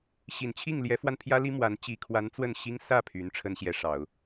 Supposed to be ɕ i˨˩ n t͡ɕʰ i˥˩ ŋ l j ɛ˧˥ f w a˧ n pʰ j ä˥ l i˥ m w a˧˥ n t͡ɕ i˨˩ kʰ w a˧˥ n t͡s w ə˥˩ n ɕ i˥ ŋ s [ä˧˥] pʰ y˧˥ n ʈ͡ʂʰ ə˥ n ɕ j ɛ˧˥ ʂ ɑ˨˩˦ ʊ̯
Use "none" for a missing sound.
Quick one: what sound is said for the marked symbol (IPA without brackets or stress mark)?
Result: ä˥˩